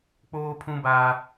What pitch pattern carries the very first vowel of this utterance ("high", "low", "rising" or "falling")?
high